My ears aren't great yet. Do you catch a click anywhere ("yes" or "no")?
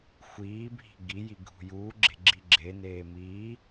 yes